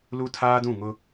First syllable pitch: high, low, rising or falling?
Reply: high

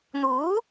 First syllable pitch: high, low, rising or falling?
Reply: rising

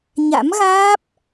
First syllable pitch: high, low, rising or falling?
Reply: rising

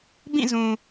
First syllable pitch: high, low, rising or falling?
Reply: falling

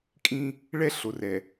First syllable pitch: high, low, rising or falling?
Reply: high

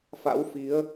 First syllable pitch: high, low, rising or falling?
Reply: rising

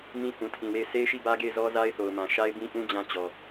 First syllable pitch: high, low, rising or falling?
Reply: high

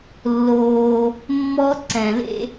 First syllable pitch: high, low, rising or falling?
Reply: high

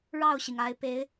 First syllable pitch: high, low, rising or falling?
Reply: falling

